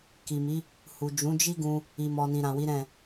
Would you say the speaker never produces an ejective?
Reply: yes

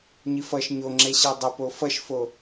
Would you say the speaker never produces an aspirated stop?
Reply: yes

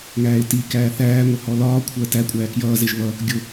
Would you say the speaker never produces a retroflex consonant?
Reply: yes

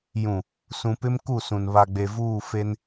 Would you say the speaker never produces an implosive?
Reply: yes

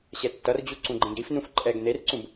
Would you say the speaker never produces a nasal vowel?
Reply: no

